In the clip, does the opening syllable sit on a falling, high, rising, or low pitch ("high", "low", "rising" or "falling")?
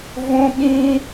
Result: high